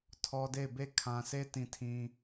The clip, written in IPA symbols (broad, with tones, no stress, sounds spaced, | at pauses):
tʰ ɔ˦ d e˦˨ ɪ̯ b e˦˨ kʰ ã˨ s e˦ t ĩ˨ tʰ ĩ˨